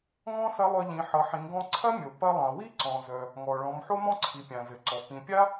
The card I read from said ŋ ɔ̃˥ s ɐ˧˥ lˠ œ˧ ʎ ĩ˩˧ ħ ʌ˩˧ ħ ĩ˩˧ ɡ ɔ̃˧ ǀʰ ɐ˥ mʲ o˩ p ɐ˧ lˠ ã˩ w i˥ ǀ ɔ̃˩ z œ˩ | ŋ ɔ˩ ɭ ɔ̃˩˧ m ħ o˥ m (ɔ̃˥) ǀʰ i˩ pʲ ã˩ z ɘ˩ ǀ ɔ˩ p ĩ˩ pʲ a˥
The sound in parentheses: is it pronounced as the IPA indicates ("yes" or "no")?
yes